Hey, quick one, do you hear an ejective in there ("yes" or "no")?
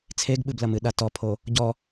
no